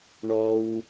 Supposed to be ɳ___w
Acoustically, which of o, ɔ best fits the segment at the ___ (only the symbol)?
ɔ